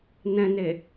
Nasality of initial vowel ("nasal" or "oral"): nasal